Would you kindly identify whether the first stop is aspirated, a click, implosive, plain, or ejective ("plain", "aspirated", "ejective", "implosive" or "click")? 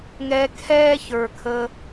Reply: aspirated